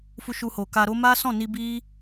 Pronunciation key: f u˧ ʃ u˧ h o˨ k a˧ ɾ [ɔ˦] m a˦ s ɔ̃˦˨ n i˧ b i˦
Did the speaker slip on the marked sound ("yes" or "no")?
yes